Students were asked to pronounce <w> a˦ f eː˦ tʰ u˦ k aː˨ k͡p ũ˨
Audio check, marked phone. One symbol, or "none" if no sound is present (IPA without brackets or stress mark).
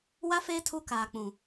w